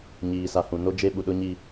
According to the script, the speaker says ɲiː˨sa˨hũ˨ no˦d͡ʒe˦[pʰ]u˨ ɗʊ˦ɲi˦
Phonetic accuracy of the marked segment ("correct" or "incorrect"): incorrect